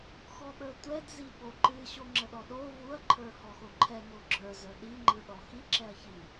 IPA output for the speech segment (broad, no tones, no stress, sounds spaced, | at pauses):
x ɔ ɓ ə˞ tʷ ɛ d z i ɓ o ǃ ɨ ɕ o ŋ͡ǁ ə ɗ ɔ ɗ o v u ɐ̯ ǃʰ ə˞ h ɔ x o ǃʰ ɛ ŋ o ɡ͡ǁ ə˞ z ə˞ ɗ i ŋ͡ǃ ɯ ɗ ɔ x i ǁ ɛ ɐ̯ ç i